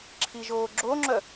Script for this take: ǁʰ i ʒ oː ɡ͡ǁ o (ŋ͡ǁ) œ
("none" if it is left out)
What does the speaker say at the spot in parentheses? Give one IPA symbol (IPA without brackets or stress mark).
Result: ŋ͡ǁ